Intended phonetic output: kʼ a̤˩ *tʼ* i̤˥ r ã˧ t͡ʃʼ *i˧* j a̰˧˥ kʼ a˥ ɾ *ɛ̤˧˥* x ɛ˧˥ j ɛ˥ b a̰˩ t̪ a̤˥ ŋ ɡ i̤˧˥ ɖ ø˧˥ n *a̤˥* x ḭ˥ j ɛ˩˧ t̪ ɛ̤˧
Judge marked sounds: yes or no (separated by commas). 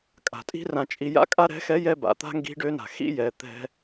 yes, yes, yes, no